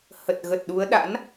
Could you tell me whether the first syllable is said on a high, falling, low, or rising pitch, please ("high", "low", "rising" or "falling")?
low